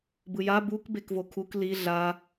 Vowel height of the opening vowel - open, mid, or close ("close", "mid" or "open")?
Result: close